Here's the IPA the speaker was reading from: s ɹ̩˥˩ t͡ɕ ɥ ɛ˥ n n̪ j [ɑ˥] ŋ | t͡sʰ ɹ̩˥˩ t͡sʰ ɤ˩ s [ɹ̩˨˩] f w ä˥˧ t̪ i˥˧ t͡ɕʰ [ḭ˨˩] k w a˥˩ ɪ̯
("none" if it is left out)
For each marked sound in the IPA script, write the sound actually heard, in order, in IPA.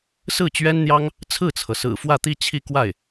ɑ˥, ɹ̩˨˩, i˥˧

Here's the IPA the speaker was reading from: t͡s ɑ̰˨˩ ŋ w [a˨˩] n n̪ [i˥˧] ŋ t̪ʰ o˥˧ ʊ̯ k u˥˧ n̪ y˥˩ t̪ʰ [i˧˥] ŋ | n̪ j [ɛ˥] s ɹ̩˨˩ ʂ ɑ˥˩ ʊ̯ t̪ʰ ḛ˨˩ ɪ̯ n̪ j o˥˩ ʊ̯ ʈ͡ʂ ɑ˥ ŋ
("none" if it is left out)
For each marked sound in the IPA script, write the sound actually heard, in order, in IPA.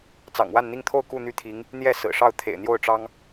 a˥˧, i˥˧, i˧˥, ɛ˥˩

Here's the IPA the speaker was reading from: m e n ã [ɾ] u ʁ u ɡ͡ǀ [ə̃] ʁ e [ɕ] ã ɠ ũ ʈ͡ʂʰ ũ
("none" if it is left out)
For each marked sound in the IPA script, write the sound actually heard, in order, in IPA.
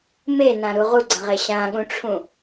ɾ, ə̃, ɕ

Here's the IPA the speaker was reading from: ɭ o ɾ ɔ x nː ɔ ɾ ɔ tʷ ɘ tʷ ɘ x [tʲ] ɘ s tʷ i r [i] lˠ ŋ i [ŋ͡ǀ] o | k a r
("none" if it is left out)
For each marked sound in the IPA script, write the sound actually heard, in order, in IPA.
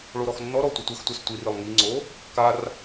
tʷ, ɨ, ŋ͡ǀ

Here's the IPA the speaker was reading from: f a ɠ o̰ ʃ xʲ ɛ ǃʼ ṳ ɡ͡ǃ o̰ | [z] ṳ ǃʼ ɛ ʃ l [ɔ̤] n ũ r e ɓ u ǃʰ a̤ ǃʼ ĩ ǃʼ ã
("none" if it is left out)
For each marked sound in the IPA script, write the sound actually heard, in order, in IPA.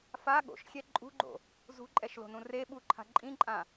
z, o̤

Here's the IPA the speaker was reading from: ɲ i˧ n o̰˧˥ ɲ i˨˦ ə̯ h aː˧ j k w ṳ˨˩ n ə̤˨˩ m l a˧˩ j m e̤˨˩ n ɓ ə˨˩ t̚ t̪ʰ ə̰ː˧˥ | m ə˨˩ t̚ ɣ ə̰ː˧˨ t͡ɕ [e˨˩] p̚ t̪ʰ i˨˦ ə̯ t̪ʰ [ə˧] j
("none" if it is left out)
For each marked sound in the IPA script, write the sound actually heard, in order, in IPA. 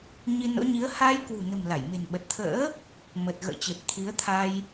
e˨˩, a˧

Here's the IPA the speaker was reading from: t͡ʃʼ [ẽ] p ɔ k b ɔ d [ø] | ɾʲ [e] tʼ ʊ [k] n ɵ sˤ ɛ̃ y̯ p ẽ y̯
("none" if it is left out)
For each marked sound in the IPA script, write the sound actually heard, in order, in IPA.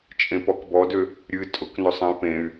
ẽ, ø, ɨ, k

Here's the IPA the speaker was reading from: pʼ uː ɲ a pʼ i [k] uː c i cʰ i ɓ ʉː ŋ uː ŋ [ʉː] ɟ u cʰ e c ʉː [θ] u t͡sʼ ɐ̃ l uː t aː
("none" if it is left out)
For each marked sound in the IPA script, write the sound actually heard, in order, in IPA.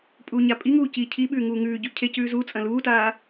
ŋ, ʉː, z

